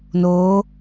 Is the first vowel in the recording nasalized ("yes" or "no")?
no